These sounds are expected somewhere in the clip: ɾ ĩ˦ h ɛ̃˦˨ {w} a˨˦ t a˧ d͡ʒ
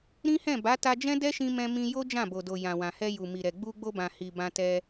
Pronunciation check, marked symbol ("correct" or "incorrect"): incorrect